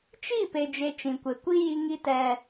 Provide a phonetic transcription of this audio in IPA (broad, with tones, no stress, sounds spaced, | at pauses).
t͡ʃ i˦˨ p e˦ d͡ʒ e˦ t͡ʃ ĩ˨ kʷ e˨ kʷ i˦ j i˦ ŋ i˦ t ɛ˦